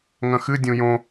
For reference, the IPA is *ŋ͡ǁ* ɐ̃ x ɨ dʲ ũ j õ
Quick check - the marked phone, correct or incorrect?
incorrect